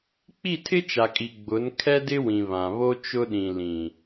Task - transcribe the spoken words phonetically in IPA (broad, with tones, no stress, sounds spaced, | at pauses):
k͡p i˦˨ tʰ ɪ˦ t͡ʃ a˨ kʼ i˨ ɡ͡b ʊ˨˦ n kʰ ɛ˦ d ɪ˦ w ĩ˨ β ã˨ β o˦ t͡ʃ ʊ˦ ɗ ĩ˨ l ĩ˨